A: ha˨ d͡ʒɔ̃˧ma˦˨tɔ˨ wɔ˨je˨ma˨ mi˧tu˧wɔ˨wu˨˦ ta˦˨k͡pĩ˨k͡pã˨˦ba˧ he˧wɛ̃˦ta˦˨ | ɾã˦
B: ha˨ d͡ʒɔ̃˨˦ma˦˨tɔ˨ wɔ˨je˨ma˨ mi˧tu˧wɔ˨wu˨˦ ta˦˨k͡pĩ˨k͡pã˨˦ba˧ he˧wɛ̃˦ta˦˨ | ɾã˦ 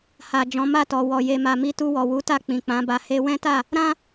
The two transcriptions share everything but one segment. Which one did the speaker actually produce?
B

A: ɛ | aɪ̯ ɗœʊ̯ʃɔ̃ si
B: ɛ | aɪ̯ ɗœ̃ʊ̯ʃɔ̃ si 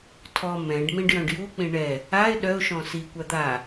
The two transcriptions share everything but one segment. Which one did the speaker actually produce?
A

